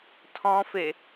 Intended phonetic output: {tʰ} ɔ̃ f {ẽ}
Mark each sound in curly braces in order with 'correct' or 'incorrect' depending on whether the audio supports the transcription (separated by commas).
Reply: correct, incorrect